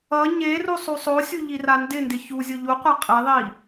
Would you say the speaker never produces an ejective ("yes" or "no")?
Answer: no